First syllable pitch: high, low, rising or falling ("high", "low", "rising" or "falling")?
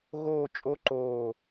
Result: falling